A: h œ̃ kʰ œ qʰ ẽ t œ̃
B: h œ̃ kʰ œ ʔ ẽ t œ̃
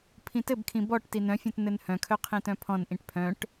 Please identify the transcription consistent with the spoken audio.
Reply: A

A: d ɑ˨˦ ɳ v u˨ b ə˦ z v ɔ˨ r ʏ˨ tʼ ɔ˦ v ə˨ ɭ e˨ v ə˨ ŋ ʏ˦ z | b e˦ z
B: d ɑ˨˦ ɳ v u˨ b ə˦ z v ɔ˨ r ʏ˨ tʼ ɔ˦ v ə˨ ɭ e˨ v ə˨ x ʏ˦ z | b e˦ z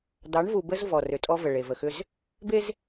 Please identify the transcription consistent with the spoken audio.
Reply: B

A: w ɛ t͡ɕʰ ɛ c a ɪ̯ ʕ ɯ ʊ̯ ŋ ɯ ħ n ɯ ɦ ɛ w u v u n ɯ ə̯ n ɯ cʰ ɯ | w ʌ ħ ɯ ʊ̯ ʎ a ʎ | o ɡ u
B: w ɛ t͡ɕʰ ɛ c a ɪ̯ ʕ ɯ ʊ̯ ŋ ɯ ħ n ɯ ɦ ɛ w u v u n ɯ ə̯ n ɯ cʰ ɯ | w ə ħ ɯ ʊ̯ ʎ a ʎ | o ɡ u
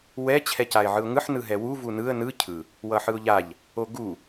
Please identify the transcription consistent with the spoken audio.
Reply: A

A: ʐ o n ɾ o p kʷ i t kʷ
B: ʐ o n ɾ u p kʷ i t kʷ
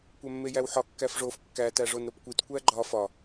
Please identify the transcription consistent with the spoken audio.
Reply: A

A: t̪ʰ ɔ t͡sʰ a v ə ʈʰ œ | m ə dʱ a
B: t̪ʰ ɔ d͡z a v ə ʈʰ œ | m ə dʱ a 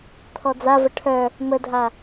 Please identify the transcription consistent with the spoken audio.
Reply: B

